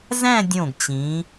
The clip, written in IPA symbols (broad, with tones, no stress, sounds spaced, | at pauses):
z æ̃˥˧ dʲ õ˧˩ ɡ t͡ɕ ĩ˩˧